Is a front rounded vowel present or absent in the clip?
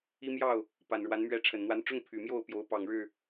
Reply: present